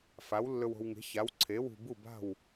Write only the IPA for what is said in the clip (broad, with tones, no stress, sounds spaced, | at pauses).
f a˨˥ w lː ɵ˧ w o̤˧ w ŋ e̤˨˥ ç a˨˥ w ǀʰ e˨˥ w ṳ˧ b u˥˨ b a̤˥˨ w